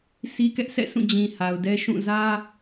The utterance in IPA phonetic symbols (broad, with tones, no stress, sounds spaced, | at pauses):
s i˦ k ɛ˦ ʔ sʰ ɛ̰˦˨ sʰ ũ˦˨ d͡ʑ ĩ˨ h a˨ ʊ̯ d ɛ˦ ʃ ũ˦˨ z ä˦